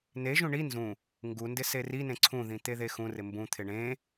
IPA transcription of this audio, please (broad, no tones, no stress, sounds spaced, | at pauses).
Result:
n e ʒ ũ ɳ i n z ũ | ŋ ɡ u n d ɪ s e r i n ẽ ǀʰ ũ ð ĩ t̪ e ð e x ũ r ɪ m b ũ t̪ʰ ɪ ɳ ẽ